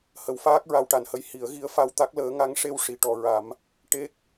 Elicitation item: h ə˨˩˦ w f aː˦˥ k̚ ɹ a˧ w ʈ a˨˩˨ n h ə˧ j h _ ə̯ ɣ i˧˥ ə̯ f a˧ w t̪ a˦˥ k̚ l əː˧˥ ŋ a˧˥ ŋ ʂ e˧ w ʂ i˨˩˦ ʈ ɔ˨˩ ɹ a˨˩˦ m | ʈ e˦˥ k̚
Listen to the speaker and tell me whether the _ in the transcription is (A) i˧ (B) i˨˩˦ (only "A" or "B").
B